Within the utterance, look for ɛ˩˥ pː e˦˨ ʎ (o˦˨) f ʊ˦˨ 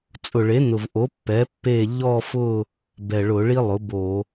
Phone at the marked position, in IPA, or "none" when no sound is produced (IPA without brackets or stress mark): ɔ˦˨